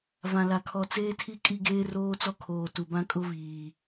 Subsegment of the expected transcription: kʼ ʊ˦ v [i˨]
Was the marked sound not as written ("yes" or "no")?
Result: yes